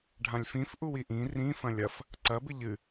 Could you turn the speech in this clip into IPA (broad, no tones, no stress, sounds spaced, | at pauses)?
ɖʱ ã lʲ f ĩ f ʔ u w i ʔ ĩ r ĩ f ɐ̃ lʲ ɐ f | ǀ ɐ b ɨ ʎ ɨ